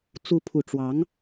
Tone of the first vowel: rising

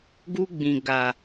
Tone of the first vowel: high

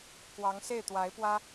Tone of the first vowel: rising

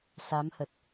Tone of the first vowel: rising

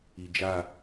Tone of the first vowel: low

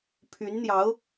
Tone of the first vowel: rising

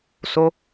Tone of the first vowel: high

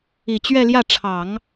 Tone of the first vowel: low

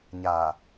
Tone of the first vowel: low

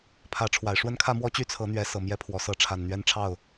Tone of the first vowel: rising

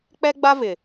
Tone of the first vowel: high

